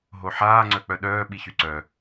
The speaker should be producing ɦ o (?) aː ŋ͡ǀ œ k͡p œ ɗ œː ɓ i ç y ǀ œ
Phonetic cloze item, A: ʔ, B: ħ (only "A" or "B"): B